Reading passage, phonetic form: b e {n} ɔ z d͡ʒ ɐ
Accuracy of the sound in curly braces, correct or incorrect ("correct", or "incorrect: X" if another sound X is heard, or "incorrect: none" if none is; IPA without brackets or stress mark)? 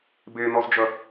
correct